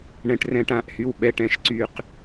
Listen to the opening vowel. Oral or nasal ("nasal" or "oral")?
nasal